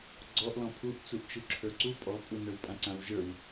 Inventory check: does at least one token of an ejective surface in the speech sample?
yes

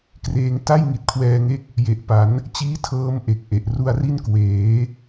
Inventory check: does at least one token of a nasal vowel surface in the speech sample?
no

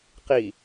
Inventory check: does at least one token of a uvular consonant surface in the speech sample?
yes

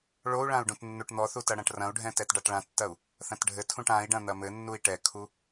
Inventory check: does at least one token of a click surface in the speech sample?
no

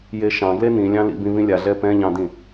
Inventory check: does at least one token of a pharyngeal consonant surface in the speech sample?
no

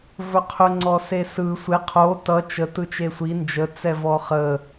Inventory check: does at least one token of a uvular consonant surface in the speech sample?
yes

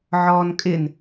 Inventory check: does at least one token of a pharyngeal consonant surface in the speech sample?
yes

